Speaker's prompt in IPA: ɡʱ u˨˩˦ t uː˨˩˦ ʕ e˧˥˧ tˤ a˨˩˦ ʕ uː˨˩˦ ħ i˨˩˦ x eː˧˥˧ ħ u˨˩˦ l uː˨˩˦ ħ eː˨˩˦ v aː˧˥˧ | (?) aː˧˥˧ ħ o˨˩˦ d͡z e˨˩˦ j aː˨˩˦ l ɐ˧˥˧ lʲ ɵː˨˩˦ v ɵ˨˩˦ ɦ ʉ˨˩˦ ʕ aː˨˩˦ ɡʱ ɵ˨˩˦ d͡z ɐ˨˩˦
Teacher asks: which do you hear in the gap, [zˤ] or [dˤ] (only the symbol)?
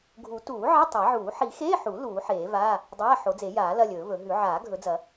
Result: dˤ